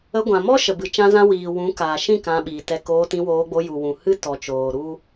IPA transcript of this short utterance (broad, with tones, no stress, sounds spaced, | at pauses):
ə˧ ɡʷ ã˨ m ɔ˦ ʃ ə˨ b ɨ˨ t͡ʃ ã˦ z ã˦ w iː˨ w ũ˨˦ k aː˨ ʃ ĩ˦˨ k ã˧ ɓ iː˨ t ɛ˧ k oː˧ t ĩ˧ w oː˧ ɡ͡b o˧ j u˨ w ũ˨ h ɨ˦ t ɔ˨ t͡ʃ oː˨ ɾ u˦